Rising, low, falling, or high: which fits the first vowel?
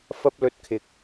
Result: high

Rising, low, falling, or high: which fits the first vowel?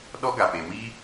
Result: high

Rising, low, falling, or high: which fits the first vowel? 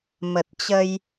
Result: low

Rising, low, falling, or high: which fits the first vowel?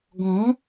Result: rising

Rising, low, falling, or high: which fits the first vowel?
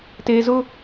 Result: low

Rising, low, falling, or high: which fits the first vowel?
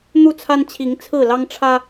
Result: falling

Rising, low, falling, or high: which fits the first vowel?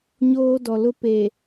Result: high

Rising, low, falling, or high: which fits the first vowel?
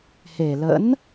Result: low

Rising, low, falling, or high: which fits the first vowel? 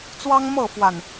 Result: high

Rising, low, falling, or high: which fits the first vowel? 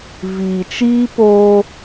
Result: low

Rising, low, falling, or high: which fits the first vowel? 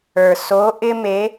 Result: low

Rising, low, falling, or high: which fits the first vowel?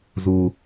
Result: low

